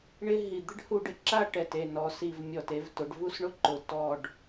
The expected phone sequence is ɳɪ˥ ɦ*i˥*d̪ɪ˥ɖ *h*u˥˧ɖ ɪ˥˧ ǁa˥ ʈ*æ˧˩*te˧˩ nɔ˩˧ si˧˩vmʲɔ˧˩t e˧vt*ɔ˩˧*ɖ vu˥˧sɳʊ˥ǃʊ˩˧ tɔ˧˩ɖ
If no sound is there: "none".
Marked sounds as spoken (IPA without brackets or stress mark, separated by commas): i˧˩, h, ɛ˧˩, ʊ˩˧